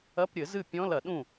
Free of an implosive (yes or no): no